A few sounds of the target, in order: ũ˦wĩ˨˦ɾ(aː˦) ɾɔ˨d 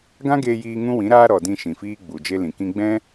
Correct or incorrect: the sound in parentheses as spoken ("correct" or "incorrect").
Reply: correct